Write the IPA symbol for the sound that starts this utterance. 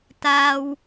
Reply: t̪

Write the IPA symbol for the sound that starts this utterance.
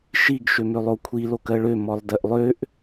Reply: ʃ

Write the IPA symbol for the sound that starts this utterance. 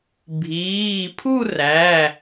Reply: bʱ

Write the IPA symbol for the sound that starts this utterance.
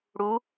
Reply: ɽ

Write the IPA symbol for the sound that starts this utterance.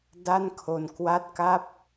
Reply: d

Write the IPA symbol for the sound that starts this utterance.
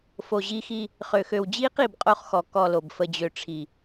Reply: f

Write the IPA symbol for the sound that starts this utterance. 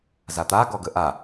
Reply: z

